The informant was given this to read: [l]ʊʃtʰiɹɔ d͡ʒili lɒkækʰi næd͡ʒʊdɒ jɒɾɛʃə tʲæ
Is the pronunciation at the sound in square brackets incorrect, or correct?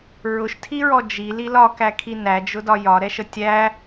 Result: incorrect